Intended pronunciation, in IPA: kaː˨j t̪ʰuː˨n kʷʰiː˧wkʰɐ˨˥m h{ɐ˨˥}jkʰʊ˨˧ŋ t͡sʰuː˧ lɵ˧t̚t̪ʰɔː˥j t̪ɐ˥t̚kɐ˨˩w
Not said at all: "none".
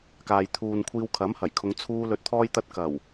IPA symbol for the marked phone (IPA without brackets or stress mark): ɐ˨˩